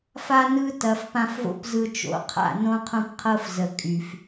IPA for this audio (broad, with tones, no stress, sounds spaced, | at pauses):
f a˦ n ɯ˦ t ɐ˨ f p ã˧ f v o̰˦ p z ɯ˧ t͡ʃ o̰˨˦ qʰ a̰˦˨ n õ˦ qʰ õ˦ p qʰ ɤ˦ f z ə˨ kʼ y˨ f